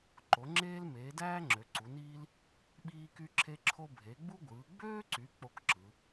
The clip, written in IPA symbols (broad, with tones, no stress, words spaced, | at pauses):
ǃo˨˦ŋ͡ǁeː˥l meː˨˦dæː˥ ŋ͡ǁø˨˦ǀu˨˦niː˥l | ɓiː˥ky˥ ǁʰe˥ǁʰo˥ bʱe˨˦ɡ͡bu˥ ɡʷɯː˨˦ ɡ͡bøː˥ǀy˨˦ k͡po˥kǁɯ˨˦